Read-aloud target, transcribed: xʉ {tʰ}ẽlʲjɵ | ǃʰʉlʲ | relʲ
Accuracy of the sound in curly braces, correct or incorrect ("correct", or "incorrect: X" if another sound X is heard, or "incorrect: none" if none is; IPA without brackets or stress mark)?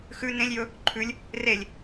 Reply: incorrect: n